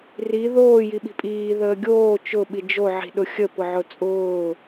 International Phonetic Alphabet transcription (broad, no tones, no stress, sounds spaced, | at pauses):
r i ð oː j i ɓ i̤ pʼ iː ð əː ɡʲ oː t͡ʃ ʊ ɓ i d͡ʒ o ʕ i̤ ɗ ʊ xʲ ə p ʊ ʕ ʊ t͡sʼ ʊː